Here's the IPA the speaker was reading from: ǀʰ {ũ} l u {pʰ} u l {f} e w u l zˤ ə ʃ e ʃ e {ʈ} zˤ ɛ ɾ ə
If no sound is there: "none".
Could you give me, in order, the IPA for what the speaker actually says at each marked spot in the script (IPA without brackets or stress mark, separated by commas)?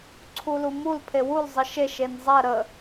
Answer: u, m, pʰ, n